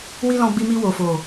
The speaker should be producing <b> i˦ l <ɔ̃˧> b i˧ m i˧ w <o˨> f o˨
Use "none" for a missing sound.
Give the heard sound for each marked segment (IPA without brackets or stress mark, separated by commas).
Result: w, ɔ̃˧, o˨